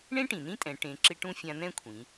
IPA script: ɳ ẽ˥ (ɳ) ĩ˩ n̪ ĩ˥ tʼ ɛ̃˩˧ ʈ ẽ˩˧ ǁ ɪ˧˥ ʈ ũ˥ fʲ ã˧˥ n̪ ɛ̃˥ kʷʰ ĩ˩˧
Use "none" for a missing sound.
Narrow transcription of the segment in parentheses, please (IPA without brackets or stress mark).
ʈ